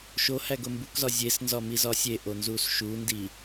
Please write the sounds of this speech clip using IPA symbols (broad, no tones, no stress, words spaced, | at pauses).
ʃohæ ɡombukzɒ zʲesnzɒ mizɒsʲeʔo nzusʃundi